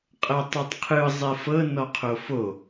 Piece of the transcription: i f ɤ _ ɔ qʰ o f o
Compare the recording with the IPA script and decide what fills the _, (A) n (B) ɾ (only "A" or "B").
A